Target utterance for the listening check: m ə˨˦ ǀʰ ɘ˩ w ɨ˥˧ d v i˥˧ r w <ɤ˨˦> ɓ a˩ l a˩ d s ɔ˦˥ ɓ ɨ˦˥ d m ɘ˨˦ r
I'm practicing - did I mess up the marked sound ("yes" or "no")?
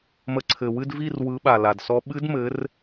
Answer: yes